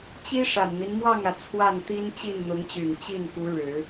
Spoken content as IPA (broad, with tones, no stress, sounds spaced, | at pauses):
t͡ɕ i˥ ʂ a˨˩ n n̪ i˦ n m w ɑ˥˩ ŋ ä˩ t͡sʰ w a˥˩ n t̪ i˥ n t͡ɕ i˥˩ n n̪ ʊ˧˥ ŋ t͡ɕ y˨˩ n t͡ɕ i˥˩ n k u˧˥ ɻ ɻ̩˨˩˦